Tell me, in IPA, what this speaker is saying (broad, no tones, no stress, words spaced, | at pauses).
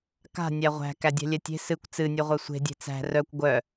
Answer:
ka̤ nʲæʁʷæ̤ kædʲɛ̤lʲɛtʲe̤ sɨkʷ t͡sɨnʲœʁʷœ sʷe̤dʲe̤ t͡sæ̤ rœkʷ ɡʷœ